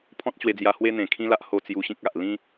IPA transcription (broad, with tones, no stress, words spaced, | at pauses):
pʰɔ̃˦t̚t͡ɕwe˧d͡zja˧ hwe˧n̪ẽ˨˩kʰĩ˧ la˦ʔho˥˧ t͡sju˧ɕĩ˦k̚a˨ʔ lĩ˦